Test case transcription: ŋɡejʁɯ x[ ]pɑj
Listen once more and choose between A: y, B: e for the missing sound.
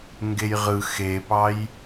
B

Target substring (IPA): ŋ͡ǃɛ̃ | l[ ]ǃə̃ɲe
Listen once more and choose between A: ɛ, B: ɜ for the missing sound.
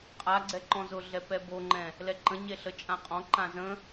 A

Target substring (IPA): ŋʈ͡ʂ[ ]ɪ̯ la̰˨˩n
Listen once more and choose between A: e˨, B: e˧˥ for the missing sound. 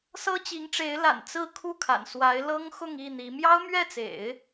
B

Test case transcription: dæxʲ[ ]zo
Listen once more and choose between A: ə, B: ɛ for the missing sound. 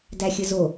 A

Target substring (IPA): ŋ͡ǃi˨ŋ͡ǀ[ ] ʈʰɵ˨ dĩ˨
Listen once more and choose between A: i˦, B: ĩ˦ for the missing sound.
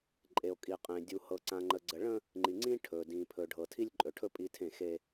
B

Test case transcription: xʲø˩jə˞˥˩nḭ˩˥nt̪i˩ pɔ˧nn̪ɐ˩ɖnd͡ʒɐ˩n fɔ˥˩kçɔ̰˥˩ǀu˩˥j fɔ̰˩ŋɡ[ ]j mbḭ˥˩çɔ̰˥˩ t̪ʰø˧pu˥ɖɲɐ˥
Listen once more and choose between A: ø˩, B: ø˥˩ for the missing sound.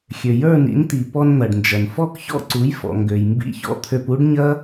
A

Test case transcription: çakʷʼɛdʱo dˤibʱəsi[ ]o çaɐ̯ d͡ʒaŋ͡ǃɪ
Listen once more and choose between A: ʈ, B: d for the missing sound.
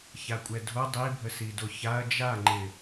B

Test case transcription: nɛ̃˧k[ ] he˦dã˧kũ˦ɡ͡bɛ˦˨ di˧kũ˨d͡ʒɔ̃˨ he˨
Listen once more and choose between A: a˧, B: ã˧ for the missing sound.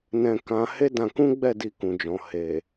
B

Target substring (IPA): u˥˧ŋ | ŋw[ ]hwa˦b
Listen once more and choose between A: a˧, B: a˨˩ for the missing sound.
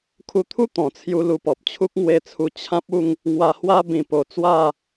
A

